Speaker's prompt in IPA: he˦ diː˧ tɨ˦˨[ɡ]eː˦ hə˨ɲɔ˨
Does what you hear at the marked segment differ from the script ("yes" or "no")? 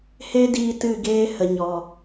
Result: no